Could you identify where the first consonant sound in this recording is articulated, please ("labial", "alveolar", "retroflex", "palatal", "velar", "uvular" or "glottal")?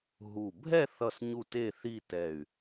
glottal